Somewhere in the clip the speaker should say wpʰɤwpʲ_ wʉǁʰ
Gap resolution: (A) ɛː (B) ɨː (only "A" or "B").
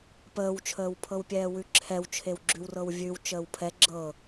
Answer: A